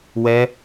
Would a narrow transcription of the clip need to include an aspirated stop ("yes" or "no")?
no